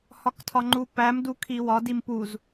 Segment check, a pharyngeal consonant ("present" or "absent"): absent